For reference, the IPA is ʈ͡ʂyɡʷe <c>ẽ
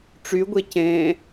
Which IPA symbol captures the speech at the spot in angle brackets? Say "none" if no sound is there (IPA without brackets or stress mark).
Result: c